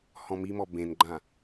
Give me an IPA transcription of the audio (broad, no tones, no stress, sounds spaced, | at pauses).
h ɔ̃ m i m ɔ b ẽ n ɡ͡ǃ ã